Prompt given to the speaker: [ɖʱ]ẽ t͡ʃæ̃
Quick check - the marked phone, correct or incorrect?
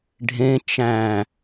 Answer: correct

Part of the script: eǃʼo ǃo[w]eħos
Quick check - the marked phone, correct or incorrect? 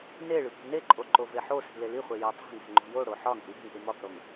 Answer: incorrect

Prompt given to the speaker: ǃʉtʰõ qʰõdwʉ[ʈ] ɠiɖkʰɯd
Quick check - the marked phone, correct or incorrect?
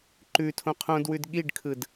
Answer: incorrect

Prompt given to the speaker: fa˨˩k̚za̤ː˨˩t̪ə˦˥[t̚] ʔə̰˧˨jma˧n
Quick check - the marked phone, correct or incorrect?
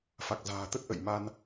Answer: correct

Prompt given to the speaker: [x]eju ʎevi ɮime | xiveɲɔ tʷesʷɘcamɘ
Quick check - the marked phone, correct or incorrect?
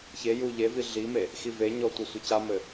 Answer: incorrect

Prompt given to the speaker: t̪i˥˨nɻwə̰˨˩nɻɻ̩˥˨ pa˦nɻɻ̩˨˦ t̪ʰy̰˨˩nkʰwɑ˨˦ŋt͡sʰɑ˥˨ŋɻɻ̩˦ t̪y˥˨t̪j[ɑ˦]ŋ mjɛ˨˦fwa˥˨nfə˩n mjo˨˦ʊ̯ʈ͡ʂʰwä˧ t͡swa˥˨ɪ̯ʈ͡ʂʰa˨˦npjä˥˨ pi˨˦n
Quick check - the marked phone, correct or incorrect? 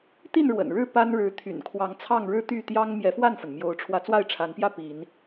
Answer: correct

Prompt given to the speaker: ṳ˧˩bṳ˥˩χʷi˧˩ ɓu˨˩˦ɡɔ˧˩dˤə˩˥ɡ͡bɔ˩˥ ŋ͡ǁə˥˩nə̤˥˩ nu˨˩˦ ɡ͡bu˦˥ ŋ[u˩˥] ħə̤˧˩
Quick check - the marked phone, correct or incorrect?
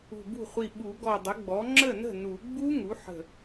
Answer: correct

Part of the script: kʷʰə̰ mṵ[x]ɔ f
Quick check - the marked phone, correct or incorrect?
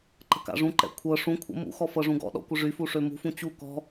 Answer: correct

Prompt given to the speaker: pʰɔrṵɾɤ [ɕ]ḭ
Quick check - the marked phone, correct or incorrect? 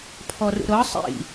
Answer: incorrect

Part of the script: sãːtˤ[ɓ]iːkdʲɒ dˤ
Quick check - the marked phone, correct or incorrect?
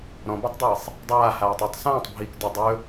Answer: incorrect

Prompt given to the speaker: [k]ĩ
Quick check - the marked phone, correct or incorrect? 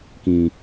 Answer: correct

